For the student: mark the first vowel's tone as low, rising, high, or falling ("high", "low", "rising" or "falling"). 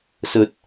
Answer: low